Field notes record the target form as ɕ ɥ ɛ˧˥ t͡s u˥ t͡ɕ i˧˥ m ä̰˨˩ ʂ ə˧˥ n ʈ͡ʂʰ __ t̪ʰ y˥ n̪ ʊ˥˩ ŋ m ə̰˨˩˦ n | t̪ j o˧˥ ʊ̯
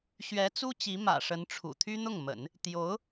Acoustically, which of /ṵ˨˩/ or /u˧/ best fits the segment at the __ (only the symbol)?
ṵ˨˩